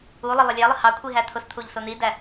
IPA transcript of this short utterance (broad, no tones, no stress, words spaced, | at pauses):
ulˠə lˠəlʲælˠə hɑkʷʰi ɦæt̪ʰʊst̪ʰuʎ sʊn̪idæ